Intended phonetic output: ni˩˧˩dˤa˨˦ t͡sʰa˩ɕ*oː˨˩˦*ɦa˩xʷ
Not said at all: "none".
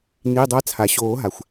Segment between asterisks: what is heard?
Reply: oː˨˩˦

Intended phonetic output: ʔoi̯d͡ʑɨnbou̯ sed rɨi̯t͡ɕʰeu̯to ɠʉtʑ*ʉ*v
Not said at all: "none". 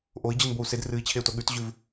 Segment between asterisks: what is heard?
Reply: ʉ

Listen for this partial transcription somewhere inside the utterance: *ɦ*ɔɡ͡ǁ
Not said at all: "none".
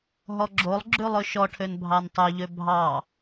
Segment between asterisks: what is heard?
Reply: ɦ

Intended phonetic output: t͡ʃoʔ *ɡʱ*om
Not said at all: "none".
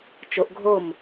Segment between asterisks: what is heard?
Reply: ɡʱ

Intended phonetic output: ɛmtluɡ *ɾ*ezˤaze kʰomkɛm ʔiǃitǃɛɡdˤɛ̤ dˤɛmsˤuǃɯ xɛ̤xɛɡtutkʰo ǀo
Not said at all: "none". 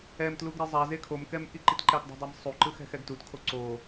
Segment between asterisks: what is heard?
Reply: ɾ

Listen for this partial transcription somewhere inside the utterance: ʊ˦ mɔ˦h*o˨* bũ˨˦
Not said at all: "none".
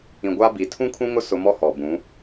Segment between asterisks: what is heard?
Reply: ɔ˨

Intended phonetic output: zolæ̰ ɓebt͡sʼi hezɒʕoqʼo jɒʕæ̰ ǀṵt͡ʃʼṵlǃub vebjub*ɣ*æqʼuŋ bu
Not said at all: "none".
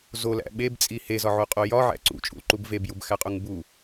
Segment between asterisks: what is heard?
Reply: x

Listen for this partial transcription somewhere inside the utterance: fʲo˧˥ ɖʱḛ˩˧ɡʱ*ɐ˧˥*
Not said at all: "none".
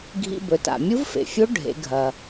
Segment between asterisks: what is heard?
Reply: ɐ˩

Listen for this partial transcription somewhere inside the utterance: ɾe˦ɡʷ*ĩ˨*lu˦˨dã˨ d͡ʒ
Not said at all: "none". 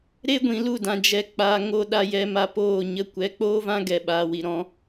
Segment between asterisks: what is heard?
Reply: ĩ˨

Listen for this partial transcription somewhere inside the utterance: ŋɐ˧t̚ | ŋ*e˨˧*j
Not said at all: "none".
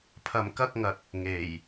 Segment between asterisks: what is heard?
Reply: e˨˩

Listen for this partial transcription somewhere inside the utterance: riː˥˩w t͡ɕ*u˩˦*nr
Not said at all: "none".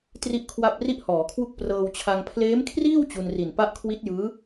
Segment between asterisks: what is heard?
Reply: u˧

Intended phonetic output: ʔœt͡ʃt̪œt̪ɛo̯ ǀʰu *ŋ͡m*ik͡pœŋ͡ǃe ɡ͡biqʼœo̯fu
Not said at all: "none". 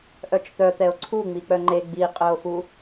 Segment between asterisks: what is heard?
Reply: ŋ͡m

